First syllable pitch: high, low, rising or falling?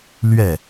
falling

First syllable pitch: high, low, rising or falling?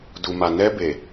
low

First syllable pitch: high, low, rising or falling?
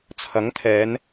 rising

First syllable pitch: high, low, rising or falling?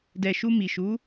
low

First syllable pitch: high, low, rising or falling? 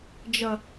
low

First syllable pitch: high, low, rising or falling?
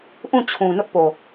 falling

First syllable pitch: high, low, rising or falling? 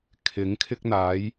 rising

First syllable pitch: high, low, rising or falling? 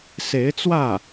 rising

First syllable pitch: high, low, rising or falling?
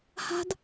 high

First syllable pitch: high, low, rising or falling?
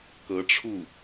rising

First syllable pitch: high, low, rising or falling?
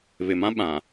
low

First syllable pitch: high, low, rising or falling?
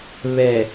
low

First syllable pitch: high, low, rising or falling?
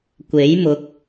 rising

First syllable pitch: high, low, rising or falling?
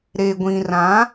low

